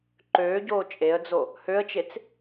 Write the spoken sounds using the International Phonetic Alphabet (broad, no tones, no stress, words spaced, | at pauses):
ǃøːɟoː t͡ʃʼeə̯d͡zo | høə̯t͡ʃet͡s